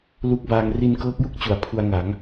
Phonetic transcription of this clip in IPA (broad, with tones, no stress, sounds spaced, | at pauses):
l u˦˥ k̚ b aː˧ ŋ r i˧ n k ɤː˦˥ k̚ j u˥˩ k̚ t͡ɕ u˩˦ a̯ pʰ u˧ a̯ ŋ a˩˦ ŋ